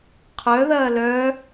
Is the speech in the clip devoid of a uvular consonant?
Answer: no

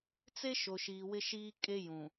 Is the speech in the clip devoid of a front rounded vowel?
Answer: yes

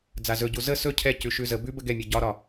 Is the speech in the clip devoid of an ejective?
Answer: yes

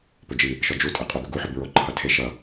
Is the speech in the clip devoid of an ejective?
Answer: no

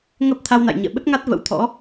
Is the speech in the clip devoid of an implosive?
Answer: no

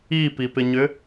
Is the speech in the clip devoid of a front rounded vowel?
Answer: no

